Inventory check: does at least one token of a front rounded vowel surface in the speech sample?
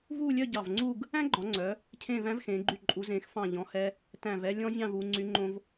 yes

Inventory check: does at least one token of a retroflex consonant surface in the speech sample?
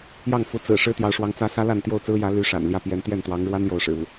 yes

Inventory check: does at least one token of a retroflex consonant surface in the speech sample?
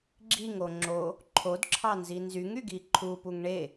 yes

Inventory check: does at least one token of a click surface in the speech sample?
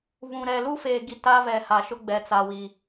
no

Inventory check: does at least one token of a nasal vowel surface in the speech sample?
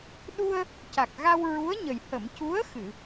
no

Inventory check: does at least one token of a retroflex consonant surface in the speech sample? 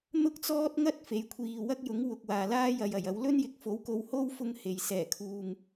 no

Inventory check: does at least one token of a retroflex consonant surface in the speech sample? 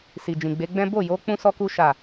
no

